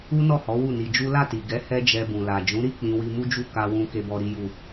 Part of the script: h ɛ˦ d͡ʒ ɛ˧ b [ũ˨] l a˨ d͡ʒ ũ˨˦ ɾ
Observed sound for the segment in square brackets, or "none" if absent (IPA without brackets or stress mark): ũ˨